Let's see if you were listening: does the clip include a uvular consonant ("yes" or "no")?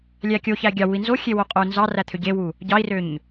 yes